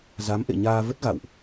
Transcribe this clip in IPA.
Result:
z a˨˦ m ʔ ḛ˧˨ ɲ aː˧ v ə˦˥ t̚ ɣ a̰˧˨ w ʔ

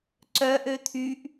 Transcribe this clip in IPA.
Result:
ǀ œ ʔ ø t̪ʰ y ʔ

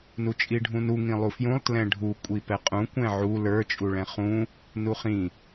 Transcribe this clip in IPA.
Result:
n u t͡ʃʼ i ɖʱ ũ n u ŋ ĩ lˠ u f j ũ lˠ t l ɛ̃ ɖʱ u kʷʼ i p ɛ qʼ ũ kʷ ɛ̃ ʕ u l ə˞ t͡ʃʼ u ɭ ɛ̃ χ ũ | n u χ ĩ

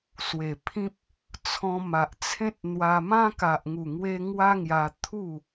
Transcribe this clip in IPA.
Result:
s w e˨˩ pʰ ĩ˦ p̚ | t͡sʰ ɔ̃˧ m a˨ ʔ t͡sʰ ẽ˦ t̚ n̪ w a˧ m ã˦ k a˨ ʔ ŋ u˨˩ ŋ w e˧ ŋ w a˦ ŋ j a˧ t̪ʰ u˥˧

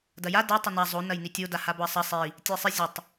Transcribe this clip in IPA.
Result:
d ɐ j a d ɐ tˤ ɪ n a zˤ o n ɐ j n i tʲ o d a h a b o ɐ̯ sˤ ɐ sˤ i | tʲ ɛ sˤ ɪ zʲ ə tˤ

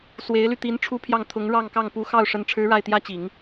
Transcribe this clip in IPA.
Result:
s w e˧˥ ɪ̯ l y˧ t̪ i˧˥ n ʈ͡ʂʰ u˥ pʰ j ɑ˥˩ ŋ t̪ʰ ʊ˧˥ ŋ ɻ ɑ˥˧ ŋ k ɑ˥˩ ŋ p u˧˥ x ɑ˥˩ ʊ̯ ʂ ə˧˥ n ʈ͡ʂʰ ɻ̩˧˥ ɻ a˥˩ ɪ̯ t̪ j ä˥ t͡ɕ i˨˩˦ ŋ

